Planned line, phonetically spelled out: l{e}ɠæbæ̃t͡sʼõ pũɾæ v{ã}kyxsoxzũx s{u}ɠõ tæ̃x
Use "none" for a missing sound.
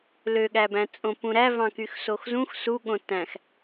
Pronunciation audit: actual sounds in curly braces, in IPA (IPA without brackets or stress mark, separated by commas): ø, ɑ̃, u